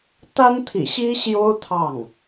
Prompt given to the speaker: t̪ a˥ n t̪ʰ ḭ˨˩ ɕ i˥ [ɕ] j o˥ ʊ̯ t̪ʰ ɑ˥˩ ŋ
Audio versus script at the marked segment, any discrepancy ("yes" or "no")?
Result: no